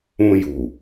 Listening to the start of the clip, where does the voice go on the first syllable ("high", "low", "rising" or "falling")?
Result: high